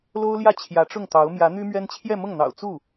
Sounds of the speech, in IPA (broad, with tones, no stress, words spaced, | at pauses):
lo˥ʊ̯ljä˥˩ t͡ɕʰjä˧˥ʈ͡ʂʊ˥˩ŋt̪ɑ˧˥ʊ̯ mjä˧˥n̪y˥mɥɛ˥n t͡ɕʰjɛ˥˧mʊ˥˩ŋn̪ɑ̰˨˩ʊ̯ t͡su˥˩